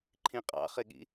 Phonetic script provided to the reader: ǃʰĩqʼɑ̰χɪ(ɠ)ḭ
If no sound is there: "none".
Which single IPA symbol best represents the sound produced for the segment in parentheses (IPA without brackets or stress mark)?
ɠ